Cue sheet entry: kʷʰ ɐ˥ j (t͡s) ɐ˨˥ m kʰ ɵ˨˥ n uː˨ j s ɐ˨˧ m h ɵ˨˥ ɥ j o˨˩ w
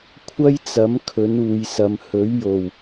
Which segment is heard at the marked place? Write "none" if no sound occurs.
t͡s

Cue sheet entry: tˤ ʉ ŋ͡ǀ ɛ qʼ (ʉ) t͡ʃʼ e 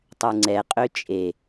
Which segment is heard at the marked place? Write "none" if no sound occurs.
ø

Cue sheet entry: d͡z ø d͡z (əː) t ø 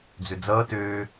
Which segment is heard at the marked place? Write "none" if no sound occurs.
ʌː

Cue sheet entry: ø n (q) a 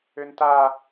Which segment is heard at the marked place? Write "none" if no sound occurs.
t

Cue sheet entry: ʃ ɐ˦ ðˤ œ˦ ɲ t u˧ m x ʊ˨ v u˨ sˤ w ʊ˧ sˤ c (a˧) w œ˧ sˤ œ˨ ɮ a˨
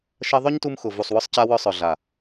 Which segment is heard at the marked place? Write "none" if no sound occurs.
a˧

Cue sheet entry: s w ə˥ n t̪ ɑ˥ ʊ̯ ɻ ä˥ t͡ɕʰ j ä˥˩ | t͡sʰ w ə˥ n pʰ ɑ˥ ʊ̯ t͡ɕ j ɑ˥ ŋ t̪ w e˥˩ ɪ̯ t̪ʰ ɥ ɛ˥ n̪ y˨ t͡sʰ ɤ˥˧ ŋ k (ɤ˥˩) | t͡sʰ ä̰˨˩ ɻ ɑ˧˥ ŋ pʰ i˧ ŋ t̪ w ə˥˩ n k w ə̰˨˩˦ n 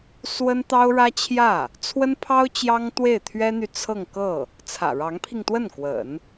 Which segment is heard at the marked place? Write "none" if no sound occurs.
ɤ˥˩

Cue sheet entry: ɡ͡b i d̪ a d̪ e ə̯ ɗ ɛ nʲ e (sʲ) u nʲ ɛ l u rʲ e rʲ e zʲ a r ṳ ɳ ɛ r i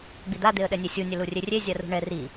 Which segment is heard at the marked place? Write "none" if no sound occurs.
sʲ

